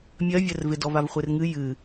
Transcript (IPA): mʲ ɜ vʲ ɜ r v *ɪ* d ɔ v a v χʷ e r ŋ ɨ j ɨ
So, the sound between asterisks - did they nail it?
yes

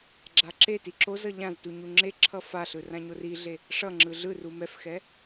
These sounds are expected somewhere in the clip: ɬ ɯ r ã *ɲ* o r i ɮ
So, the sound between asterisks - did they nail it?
yes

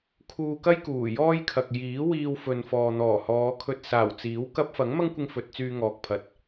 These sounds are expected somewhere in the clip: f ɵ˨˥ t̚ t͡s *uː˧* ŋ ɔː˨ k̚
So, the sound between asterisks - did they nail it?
no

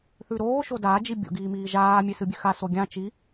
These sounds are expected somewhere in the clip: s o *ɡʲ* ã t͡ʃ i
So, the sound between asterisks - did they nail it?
yes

